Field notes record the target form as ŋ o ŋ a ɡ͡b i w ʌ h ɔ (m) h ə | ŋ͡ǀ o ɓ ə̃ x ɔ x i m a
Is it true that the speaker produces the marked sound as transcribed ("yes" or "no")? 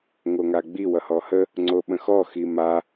no